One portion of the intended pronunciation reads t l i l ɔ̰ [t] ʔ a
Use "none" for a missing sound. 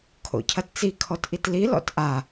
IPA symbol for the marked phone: t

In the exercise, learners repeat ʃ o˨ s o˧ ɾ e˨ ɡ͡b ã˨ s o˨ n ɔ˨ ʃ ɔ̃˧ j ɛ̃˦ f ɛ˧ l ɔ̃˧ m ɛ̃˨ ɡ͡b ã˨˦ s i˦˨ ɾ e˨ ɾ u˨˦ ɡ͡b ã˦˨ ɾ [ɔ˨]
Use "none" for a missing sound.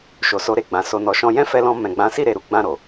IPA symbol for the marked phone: o˨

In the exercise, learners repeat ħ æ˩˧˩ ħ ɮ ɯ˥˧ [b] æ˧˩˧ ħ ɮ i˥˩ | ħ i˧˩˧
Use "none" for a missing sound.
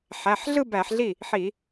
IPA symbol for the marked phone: b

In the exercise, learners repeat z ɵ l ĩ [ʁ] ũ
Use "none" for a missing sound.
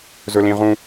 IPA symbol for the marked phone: ʁ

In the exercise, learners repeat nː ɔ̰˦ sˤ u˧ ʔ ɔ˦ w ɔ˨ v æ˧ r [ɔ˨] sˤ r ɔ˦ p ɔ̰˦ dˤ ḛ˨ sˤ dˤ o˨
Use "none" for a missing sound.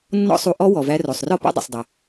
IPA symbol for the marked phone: o˨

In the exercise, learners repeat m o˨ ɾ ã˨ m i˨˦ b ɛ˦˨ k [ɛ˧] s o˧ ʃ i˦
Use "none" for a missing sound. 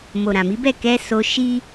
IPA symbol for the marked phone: ɛ˧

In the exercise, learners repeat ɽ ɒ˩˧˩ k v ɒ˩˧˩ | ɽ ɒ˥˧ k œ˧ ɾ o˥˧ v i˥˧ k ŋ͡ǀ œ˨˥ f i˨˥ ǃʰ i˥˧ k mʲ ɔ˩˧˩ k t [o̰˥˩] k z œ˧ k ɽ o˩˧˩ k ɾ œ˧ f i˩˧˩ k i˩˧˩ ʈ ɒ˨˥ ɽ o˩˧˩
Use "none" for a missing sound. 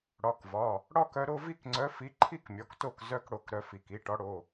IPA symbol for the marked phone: o˥˩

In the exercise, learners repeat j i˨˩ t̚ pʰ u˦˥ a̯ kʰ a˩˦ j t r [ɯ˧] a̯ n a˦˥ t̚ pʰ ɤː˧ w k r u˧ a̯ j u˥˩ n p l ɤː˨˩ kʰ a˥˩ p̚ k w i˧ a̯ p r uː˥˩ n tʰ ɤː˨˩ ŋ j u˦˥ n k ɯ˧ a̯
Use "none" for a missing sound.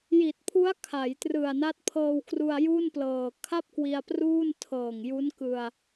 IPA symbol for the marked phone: ɯ˨˩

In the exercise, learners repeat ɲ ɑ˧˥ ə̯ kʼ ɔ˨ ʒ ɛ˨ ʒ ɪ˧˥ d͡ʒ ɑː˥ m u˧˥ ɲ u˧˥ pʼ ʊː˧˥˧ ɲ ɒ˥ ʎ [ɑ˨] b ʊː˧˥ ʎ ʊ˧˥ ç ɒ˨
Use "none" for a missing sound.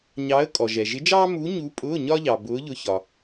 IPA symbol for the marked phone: ɑ˨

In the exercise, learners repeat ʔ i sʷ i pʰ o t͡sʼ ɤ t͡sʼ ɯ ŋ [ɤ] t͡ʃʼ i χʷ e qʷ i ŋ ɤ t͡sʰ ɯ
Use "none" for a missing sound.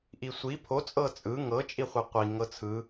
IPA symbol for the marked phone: ɤ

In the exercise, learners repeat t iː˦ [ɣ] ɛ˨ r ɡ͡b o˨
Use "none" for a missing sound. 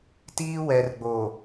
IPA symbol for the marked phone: w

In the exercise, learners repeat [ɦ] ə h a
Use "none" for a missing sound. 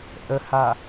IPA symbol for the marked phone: ʔ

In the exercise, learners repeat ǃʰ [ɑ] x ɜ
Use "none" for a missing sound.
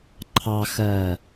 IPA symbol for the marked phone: ɑ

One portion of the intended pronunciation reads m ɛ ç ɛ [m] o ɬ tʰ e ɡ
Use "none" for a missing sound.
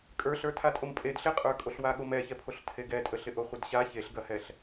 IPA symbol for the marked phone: pʰ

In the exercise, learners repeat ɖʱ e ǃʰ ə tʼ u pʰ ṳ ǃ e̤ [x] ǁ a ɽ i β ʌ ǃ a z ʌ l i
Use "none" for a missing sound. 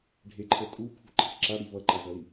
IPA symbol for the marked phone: x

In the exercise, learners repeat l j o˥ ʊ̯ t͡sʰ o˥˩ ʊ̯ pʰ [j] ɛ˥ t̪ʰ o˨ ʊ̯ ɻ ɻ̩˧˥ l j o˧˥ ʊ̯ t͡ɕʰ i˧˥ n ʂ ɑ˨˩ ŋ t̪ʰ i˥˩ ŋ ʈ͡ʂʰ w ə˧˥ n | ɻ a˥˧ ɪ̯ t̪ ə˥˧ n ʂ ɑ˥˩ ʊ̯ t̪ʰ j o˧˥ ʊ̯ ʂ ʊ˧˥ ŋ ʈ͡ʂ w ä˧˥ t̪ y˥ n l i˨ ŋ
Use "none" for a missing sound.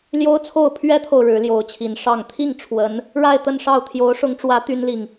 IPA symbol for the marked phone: ɥ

